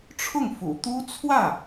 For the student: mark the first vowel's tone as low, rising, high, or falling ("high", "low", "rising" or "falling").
falling